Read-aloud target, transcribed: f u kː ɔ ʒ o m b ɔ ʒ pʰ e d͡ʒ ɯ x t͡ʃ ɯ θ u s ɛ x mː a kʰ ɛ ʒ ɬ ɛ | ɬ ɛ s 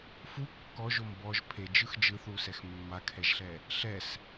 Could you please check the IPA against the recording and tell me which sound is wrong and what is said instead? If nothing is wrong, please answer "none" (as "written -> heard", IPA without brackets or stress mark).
t͡ʃ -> d͡ʒ